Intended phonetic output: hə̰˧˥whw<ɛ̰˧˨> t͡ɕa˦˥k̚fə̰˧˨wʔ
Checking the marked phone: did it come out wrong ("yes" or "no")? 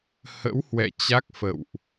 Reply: no